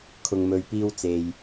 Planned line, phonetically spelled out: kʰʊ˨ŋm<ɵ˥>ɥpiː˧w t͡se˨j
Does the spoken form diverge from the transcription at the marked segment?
yes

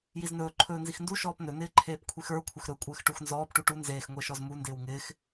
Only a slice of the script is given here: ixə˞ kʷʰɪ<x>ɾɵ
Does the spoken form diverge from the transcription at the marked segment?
no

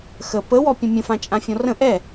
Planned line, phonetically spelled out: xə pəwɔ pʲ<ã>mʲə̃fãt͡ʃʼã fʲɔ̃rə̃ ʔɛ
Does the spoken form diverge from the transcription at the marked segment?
yes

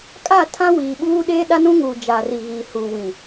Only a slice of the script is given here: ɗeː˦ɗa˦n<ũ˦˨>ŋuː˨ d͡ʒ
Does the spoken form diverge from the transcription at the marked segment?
yes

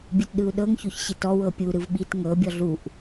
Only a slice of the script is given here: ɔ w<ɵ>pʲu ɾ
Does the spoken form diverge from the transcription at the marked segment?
yes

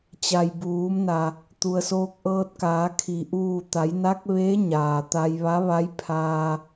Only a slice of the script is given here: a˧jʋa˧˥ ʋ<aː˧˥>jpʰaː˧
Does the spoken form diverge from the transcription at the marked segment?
yes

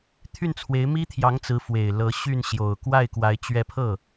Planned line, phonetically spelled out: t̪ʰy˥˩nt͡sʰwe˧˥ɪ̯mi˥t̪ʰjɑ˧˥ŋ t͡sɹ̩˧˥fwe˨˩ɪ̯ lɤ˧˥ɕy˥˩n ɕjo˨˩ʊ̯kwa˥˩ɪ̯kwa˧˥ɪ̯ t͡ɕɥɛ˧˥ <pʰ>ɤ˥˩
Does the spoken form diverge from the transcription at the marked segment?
no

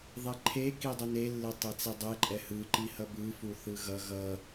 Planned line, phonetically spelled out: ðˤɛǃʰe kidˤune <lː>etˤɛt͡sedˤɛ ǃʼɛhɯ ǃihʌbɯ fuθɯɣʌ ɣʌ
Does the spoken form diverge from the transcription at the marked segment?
no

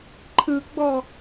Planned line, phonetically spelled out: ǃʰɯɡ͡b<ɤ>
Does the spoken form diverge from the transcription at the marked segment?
yes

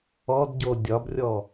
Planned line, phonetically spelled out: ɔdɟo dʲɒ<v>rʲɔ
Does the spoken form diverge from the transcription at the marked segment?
yes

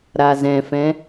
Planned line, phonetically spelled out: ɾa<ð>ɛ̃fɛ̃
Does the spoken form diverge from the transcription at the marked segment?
yes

